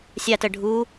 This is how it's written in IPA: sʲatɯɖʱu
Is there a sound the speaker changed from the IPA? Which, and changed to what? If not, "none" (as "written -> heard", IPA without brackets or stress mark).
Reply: ɯ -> ə